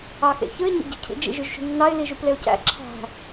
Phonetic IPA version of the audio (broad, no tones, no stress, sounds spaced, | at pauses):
ɑ x ḛ ç ɯ ɪ̯ ɲ ḛ ɟ i̤ cʰ ḭ d͡ʒ ḭ ʒ y ʒ ʃ ṳ nː ɑ ɪ̯ l i ʒ u p l e ʊ̯ c æ̰ ǁʰ æ̤